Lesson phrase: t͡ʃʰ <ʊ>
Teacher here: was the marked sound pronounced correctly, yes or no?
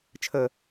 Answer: no